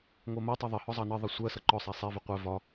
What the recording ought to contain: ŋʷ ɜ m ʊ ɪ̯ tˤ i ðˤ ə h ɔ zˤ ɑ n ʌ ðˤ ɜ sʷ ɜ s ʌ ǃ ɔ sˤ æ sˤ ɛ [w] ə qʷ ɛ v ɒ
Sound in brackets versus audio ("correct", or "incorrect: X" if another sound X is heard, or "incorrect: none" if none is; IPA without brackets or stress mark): incorrect: v